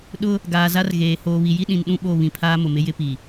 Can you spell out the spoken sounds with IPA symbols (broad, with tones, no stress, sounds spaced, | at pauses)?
ɗ ʊ˦ | ɡ aː˨ z a˦ r ɣ eː˨ h oː˨ β i˨ j i˦ ɗ ĩ˨ n ɗ ũ˦ ɓ o˦˨ β ĩ˨ pʰ aː˦ m ʊ˨ m ɪ˦ j ɪ˦ p i˨